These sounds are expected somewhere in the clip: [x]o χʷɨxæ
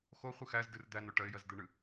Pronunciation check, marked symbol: correct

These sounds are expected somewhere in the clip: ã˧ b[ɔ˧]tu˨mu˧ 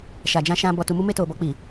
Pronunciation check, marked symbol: incorrect: ɔ˨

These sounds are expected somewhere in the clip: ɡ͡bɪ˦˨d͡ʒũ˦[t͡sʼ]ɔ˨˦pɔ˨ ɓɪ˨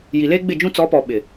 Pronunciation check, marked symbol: incorrect: t͡s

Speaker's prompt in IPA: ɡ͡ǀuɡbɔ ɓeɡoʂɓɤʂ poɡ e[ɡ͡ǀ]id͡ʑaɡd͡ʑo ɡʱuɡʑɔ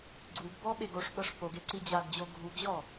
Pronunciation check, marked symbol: incorrect: ǀ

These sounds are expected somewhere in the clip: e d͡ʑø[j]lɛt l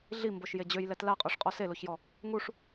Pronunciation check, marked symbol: correct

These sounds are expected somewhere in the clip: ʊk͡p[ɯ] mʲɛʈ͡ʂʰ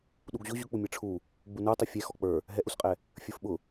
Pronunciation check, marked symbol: incorrect: u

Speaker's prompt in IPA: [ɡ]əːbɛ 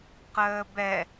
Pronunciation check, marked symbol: incorrect: q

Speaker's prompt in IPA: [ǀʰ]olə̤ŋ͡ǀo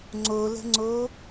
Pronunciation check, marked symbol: incorrect: ŋ͡ǀ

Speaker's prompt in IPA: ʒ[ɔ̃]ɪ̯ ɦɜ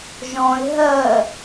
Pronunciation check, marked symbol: correct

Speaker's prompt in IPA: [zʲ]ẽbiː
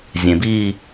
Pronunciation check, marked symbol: correct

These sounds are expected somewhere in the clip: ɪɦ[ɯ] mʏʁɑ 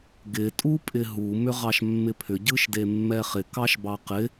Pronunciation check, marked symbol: incorrect: u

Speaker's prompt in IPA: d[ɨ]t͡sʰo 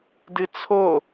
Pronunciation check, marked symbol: correct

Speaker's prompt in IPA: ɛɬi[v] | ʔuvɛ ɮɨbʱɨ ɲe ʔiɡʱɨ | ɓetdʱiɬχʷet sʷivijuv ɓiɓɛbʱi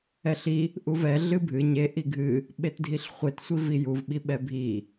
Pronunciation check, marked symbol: incorrect: none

